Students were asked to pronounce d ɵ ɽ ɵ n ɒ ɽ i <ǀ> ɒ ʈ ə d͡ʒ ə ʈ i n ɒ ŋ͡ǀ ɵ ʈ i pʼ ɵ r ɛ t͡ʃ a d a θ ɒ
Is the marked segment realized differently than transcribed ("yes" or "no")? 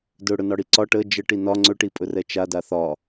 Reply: no